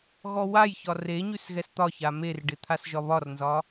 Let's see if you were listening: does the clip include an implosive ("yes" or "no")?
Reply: no